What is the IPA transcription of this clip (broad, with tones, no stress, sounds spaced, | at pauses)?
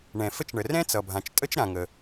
ɳ ɛ̃˩ f ə˥ t͡ʃ ɳ ə˩ r ɛ̃˥ t͡s ʌ˩ bʱ ã˩ t͡ʃ tʼ ə˥ t͡ʃ ɾ ã˩ ŋ ə˩